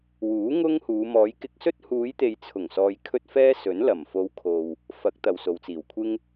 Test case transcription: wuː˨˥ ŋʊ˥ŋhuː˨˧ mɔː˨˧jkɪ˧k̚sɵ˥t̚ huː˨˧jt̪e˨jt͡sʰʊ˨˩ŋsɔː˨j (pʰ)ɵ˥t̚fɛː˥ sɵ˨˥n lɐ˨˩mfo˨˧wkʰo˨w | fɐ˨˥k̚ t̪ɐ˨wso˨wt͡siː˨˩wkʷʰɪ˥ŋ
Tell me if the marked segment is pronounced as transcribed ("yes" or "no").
no